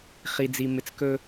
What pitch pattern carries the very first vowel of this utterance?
low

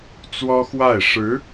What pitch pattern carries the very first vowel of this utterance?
high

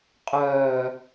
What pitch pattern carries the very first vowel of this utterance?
low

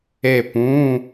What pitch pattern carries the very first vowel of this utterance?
falling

